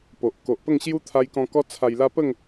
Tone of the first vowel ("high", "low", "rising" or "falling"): low